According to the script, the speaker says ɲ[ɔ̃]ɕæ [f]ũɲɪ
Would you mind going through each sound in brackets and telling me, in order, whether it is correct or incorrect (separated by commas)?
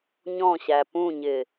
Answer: correct, incorrect